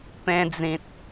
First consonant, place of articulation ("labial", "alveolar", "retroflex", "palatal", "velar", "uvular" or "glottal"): labial